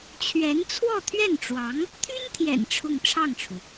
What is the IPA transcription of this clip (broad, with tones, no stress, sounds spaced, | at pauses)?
t͡ɕʰ ɥ ɛ˧˥ n t͡sʰ w ɔ˥˧ t̪ʰ ɥ ɛ˥˩ n ʈ͡ʂ w ɑ˧˥ ŋ | t̪ʰ y˥ n t̪ʰ j ɛ̰˨˩ n ʈ͡ʂʰ ʊ˥˧ ŋ ʈ͡ʂʰ ɑ˥˩ ŋ ʈ͡ʂʰ u˩